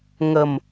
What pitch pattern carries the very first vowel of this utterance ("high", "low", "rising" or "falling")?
low